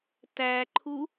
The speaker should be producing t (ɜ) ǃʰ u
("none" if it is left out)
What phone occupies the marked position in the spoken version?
æ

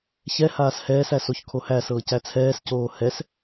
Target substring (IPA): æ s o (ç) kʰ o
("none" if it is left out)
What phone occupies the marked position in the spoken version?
ç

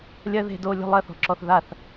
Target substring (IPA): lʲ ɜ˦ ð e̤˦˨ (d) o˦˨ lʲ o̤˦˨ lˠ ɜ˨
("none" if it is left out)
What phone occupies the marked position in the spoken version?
d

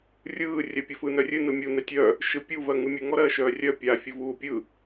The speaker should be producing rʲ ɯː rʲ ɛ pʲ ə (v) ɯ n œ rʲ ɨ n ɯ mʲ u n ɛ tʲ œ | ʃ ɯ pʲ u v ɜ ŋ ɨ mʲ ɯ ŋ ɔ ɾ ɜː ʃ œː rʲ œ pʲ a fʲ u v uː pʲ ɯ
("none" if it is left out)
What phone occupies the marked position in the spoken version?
f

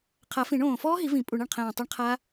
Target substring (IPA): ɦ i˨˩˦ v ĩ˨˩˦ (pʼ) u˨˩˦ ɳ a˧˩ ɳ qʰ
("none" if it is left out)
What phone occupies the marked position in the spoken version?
pʼ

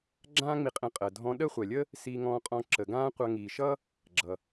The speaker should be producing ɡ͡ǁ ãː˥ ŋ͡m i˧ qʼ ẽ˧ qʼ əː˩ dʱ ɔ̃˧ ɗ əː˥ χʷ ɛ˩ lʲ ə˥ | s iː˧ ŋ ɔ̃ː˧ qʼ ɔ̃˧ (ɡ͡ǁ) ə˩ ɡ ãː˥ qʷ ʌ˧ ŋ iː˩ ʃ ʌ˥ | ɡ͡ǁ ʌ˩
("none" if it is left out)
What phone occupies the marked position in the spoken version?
ǁ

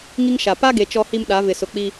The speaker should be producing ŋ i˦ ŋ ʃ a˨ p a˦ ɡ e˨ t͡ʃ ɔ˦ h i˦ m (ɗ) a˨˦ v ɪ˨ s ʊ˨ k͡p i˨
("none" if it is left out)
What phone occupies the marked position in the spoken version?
ɗ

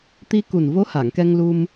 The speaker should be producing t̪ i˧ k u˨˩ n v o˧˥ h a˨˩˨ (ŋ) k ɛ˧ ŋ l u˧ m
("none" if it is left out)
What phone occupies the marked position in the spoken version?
ŋ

